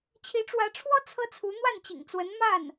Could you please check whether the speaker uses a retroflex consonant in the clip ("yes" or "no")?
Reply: yes